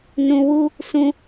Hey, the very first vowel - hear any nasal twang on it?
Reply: yes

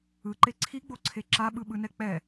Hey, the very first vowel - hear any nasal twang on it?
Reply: no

